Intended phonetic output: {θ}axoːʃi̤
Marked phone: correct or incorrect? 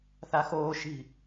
correct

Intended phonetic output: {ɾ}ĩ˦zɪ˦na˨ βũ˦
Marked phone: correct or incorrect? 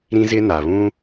correct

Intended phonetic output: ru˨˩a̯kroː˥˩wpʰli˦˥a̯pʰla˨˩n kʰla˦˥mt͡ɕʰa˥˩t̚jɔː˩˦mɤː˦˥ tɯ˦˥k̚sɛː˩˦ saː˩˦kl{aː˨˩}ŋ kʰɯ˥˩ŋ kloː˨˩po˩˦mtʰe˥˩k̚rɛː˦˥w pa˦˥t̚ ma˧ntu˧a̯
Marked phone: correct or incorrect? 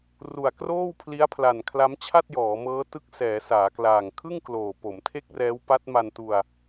correct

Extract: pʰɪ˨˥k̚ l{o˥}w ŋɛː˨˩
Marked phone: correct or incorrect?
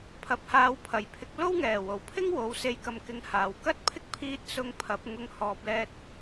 correct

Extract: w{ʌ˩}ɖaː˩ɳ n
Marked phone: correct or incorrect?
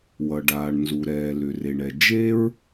correct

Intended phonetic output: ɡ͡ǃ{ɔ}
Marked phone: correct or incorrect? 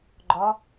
correct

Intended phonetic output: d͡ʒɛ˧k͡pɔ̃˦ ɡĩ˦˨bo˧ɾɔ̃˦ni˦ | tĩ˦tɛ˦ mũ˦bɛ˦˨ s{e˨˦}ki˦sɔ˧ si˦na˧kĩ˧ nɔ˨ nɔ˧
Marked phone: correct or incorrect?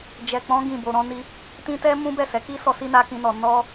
incorrect: ɛ˨˦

